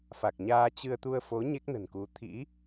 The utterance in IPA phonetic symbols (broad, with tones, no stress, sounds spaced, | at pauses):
f a˨˩ k̚ ɲ aː˧ t͡ɕ ɨ˧ ə̯ t̪ u˧ ə̯ f o˨˦ ɲ e˦˥ k̚ n ə̤˨˩ n k u˨˦ t̪ʰ ḭ˧˥